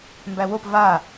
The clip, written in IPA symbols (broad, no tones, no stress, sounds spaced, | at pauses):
m b æ w o p v a